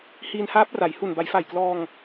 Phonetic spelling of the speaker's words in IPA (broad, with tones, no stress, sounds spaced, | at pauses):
h iː˧ n h aː˦˥ p̚ r a˩˦ j h u˨˩ n b a˩˦ j f a˨˩ j k l ɔː˧ ŋ